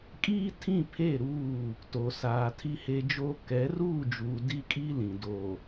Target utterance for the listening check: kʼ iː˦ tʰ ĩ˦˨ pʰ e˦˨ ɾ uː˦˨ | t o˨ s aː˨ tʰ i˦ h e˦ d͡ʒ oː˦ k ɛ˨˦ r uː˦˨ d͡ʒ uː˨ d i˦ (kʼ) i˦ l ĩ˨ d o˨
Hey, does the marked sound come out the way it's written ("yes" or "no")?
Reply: yes